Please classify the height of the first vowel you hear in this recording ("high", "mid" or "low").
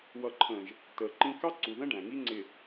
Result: mid